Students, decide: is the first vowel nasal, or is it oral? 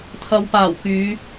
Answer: oral